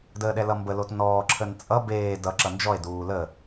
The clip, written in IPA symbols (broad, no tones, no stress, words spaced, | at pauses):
dəːɗɛlʌmbə lotnɔː ǁʰənt͡sʼʌ beː dʌ ǁʌnd͡ʒɔe̯ duːlə